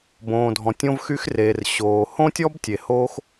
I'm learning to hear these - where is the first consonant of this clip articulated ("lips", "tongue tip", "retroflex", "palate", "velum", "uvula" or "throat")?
lips